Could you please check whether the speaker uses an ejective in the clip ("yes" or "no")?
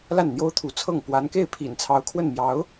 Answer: no